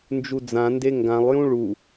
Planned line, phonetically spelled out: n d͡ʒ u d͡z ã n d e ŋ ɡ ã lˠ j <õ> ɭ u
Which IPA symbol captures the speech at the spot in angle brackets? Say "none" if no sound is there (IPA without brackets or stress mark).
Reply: ũ